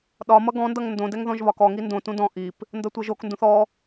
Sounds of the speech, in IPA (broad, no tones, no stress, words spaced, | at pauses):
ɗɒmʌ ɡɔ̃ndʌŋ ndõdɛŋ ðɔ̃ʒβɒkɔŋi ndõtũ dɔ̃ ʔip | ndʌtʷɤʒokndũθ ɔ